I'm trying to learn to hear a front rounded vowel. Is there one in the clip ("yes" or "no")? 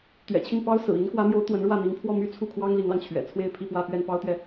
yes